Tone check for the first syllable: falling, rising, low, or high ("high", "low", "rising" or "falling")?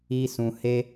high